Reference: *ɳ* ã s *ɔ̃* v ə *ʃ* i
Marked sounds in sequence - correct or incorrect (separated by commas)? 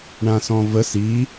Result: correct, correct, incorrect